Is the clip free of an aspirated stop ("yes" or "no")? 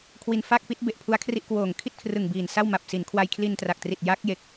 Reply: no